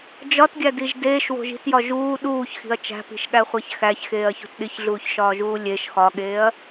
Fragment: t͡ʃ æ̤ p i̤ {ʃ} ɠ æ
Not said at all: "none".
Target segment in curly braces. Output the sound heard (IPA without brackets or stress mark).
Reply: ʃ